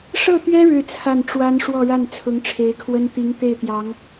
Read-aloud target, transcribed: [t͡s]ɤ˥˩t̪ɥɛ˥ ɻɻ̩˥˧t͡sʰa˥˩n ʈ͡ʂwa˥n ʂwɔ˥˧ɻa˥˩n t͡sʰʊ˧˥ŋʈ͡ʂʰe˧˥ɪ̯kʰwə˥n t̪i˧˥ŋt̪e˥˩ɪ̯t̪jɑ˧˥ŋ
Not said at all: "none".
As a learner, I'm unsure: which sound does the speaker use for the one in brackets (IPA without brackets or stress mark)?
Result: ʂ